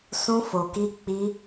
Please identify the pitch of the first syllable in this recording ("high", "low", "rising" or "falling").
high